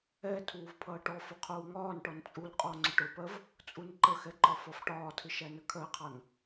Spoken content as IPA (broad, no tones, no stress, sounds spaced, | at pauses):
ɛ tʰ uː v pʰ ʌː ʈ ɔ f ʊ qʰ uː ŋ ɒː n ʈ ɔ n t͡sʼ u l qʼ ɔ ŋ͡ǀ ʊ ʈ ʊ p ɜ v | t͡sʼ u n ǃ ə x ɛ ǃ ɒ f ɒ f ʈ ɒː tʰ ɪ ʃ æ n ə kʰ ɜ qʰ ɑ n